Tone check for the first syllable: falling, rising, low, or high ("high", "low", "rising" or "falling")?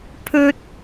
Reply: high